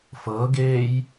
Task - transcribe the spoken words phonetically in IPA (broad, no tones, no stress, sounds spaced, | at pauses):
f ɤː ɡ eː j